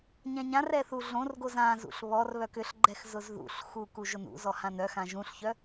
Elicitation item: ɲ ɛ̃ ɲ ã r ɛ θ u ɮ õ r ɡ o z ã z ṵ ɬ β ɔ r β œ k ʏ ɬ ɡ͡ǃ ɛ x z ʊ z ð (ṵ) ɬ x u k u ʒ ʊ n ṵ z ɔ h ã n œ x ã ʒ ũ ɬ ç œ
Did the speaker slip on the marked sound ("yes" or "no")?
no